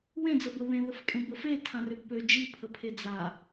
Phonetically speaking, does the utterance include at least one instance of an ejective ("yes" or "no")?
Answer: yes